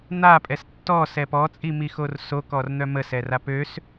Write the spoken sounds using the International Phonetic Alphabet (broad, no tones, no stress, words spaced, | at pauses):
n̪apʼɛs tːɔsɛ pɔt͡sʼimixor sokɔrn̪œ məsɛra pøs